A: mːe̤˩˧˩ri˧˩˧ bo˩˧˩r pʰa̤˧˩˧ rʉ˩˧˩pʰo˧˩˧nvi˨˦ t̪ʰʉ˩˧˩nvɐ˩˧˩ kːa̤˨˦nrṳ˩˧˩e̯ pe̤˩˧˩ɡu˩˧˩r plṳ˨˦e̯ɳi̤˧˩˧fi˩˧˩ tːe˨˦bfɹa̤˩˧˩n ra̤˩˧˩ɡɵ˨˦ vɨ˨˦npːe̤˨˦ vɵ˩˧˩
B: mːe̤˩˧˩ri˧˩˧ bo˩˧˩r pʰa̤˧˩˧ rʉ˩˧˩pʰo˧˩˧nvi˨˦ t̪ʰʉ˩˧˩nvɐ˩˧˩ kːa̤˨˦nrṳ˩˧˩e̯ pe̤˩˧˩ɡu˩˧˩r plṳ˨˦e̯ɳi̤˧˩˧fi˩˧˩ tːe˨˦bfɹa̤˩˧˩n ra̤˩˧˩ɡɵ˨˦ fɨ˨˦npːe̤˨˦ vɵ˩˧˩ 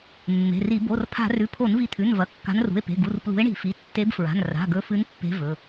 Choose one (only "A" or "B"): B